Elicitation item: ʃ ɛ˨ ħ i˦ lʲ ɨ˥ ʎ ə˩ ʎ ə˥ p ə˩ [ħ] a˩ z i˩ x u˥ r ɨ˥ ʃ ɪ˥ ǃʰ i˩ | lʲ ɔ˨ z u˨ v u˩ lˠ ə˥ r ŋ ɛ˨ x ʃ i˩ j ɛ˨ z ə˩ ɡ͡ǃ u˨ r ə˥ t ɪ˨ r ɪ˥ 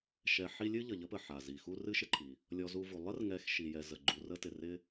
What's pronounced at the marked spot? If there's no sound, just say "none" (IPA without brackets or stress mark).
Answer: ħ